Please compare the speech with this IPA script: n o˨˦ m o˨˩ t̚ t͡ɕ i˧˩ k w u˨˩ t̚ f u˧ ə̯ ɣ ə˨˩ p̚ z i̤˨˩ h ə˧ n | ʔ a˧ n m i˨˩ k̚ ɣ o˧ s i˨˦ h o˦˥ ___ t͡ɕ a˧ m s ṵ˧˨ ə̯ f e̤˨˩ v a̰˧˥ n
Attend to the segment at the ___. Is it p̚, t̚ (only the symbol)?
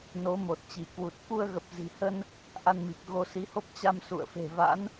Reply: p̚